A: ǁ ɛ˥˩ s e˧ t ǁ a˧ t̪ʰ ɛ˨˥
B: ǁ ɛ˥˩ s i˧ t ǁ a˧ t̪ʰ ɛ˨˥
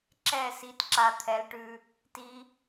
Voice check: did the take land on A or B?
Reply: B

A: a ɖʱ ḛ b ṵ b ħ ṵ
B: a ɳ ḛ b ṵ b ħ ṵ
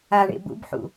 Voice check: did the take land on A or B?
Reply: B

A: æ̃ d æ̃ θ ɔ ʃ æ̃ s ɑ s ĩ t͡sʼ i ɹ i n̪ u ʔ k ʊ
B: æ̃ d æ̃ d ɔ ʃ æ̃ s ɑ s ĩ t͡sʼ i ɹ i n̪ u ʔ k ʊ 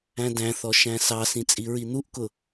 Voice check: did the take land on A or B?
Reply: A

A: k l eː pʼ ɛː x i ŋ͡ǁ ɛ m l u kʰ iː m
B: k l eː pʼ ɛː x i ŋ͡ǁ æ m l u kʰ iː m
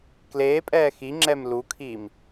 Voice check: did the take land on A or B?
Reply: A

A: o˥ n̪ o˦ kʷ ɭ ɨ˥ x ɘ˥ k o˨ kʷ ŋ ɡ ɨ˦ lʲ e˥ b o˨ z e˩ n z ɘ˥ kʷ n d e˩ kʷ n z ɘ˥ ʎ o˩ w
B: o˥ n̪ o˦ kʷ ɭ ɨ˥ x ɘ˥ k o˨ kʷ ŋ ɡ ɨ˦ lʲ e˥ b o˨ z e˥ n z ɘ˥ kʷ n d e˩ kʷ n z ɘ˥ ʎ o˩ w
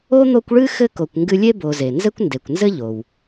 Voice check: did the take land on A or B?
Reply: A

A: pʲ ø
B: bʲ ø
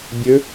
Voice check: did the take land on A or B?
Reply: B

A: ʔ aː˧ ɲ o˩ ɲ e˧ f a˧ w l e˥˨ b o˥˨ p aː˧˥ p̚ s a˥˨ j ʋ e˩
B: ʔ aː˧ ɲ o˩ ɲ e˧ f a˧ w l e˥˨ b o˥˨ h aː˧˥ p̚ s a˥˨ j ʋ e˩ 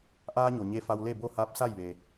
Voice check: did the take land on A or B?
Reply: B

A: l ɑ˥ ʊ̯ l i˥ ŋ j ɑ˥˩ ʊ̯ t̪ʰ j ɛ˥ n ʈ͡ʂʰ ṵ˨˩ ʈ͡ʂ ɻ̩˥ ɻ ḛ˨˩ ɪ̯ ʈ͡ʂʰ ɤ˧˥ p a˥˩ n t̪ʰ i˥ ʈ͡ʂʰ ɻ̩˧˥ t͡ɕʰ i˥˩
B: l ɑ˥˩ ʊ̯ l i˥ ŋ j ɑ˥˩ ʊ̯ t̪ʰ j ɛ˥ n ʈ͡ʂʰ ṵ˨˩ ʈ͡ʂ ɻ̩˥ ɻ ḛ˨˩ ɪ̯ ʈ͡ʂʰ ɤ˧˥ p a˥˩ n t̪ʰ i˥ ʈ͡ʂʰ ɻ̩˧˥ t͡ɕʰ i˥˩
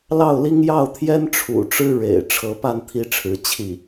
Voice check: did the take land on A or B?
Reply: B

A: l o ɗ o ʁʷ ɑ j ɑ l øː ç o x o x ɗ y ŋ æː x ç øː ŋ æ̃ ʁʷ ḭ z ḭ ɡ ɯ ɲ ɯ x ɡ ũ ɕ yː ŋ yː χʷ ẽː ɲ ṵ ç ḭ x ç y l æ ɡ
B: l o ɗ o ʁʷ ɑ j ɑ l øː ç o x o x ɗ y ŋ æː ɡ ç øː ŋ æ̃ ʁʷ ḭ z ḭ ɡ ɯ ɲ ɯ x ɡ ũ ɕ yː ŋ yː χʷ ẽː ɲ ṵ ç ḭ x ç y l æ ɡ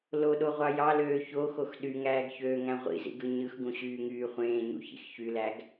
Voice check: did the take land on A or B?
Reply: B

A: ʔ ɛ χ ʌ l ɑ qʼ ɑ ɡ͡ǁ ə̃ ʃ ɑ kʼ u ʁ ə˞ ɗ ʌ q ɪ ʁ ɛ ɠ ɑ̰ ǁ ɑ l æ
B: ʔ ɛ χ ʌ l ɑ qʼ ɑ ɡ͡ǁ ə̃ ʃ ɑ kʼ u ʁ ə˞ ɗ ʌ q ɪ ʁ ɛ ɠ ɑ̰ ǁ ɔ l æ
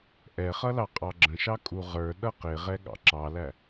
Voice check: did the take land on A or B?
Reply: A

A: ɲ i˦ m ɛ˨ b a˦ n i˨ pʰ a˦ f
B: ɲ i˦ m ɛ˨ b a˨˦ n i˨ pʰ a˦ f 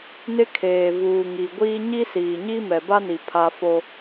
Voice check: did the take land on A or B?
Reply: A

